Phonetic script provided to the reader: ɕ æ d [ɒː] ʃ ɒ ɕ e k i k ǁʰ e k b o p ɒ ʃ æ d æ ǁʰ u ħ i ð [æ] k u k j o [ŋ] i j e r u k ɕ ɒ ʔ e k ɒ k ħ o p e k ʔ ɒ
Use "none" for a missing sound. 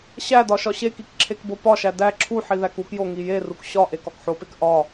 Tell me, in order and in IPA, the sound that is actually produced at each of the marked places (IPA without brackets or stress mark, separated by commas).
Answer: ɒ, æ, ŋ